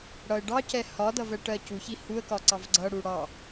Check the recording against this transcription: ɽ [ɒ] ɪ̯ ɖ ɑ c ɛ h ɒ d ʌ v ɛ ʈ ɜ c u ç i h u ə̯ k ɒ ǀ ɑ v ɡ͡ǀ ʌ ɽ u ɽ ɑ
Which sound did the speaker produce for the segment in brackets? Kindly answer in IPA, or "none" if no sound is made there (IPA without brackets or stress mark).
ʌ